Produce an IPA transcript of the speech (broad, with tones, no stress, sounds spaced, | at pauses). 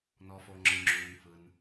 n ɔ˩ f o˩ ŋ͡ǁ ɯ˩ ŋ͡ǁ uː˩ n f ɯ˩ n